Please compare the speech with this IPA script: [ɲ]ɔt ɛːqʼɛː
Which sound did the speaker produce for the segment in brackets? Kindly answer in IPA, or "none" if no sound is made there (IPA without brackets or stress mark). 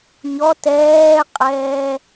ɲ